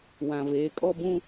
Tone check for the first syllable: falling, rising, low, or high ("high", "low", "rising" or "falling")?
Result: low